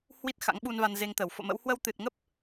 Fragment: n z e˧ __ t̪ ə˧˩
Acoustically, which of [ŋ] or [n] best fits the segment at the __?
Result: ŋ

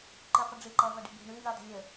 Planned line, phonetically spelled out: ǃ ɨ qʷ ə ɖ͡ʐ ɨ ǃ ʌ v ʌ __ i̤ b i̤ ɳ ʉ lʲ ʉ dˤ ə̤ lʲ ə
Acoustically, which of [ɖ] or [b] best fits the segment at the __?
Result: ɖ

